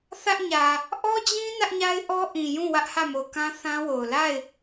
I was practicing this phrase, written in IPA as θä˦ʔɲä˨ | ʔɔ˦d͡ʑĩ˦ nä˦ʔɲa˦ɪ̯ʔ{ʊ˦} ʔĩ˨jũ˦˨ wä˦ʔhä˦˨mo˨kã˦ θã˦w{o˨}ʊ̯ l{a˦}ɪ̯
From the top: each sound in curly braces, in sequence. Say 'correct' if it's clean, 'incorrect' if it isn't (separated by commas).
incorrect, correct, incorrect